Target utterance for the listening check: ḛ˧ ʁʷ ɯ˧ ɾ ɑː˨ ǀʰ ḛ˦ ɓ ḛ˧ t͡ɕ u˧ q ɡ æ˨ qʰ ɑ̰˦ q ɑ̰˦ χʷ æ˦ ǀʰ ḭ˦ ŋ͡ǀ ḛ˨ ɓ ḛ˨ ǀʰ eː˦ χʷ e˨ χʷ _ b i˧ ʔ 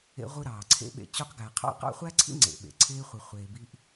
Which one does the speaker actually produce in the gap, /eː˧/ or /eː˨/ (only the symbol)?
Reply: eː˨